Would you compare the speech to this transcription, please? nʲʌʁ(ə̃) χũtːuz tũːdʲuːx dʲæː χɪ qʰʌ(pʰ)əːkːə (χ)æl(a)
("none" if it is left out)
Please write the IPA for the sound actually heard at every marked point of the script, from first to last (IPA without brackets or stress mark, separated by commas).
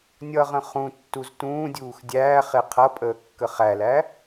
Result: ə̃, pʼ, χ, æ